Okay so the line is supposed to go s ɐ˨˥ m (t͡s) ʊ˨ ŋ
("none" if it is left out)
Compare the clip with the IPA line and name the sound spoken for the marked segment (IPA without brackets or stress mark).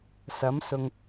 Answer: s